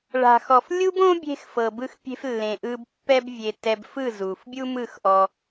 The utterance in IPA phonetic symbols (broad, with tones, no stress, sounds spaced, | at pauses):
ɭ a̤˧ x ɔ˧ f lʲ u˦ b õ˦ bʲ e̤˧ x f ɤ˨ b ɯ˧ x pʲ e̤˧ f lː ẽ˨ ʔ ɯ˧ b pː ɛ˧ b vʲ e˨ t ɛ˧ b f ɯ˦˨ z u˨ f bʲ u˧ m ɯ˦˨ x ʔ ɔ˧